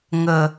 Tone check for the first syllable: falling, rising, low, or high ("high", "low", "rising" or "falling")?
low